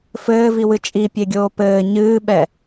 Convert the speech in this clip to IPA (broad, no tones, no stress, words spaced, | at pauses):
fɘːviwɨ t͡ʃʼipʲeɡʲoː pɘː ɲɨːɓɛ